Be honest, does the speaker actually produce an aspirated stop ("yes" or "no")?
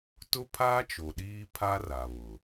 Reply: yes